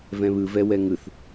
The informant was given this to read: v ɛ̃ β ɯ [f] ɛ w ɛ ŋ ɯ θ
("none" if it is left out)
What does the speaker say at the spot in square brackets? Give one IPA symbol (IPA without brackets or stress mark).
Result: v